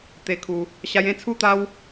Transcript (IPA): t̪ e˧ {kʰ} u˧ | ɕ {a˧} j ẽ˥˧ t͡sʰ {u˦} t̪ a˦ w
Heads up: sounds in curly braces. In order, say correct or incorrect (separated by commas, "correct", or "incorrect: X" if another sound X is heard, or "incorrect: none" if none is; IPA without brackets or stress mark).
correct, correct, correct